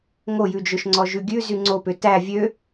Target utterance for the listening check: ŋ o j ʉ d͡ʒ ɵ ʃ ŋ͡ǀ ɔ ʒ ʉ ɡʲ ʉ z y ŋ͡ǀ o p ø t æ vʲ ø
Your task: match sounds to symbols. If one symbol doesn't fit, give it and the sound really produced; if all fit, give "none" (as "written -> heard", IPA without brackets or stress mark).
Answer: none